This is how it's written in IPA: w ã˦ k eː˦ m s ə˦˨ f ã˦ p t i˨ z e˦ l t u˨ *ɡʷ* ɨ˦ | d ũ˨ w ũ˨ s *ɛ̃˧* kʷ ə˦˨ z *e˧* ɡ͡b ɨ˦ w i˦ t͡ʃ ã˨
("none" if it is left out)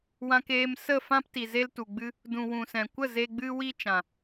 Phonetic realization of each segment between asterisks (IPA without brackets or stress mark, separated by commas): ɡ͡b, ɛ̃˨, e˧